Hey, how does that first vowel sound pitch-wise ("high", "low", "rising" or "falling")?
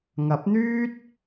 rising